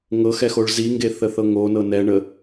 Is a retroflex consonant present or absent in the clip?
present